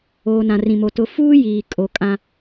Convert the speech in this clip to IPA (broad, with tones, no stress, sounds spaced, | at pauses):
oː˨ n ã˨ r ĩ˨ m o˨ t ʊ˨ f uː˦ j iː˨ kʼ o˨ kʼ ã˦